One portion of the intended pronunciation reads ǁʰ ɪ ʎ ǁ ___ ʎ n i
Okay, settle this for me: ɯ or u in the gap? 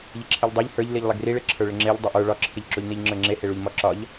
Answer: u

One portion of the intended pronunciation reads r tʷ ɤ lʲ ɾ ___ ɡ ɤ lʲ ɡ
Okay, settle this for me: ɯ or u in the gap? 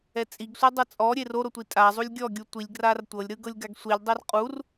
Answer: ɯ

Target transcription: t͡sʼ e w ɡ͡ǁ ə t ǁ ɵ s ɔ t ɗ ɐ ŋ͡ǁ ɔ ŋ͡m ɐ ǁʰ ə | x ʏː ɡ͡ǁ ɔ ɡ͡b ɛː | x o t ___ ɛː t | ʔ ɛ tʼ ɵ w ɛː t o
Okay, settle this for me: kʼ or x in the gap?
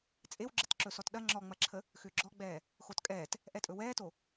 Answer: kʼ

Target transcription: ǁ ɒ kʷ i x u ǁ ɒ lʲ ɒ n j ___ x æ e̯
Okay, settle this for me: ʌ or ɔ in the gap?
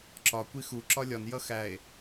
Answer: ʌ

